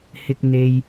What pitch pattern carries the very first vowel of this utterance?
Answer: high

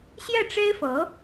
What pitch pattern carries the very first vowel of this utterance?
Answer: falling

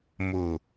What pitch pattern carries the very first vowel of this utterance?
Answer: low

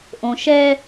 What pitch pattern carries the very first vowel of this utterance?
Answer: low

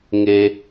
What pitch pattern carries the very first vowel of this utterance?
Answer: low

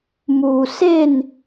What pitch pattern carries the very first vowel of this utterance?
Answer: low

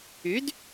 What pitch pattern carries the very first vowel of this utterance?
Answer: rising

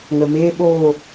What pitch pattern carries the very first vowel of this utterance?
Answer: low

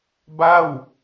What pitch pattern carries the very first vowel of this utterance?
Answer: falling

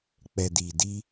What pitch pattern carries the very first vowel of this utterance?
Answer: low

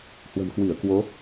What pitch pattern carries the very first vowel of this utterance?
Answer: low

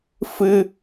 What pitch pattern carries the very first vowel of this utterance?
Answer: high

